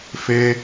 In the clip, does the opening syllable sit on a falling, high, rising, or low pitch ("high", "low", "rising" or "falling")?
high